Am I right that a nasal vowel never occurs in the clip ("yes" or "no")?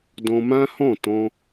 no